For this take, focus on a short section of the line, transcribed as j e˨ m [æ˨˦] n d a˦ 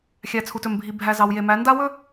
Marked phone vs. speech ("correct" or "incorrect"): correct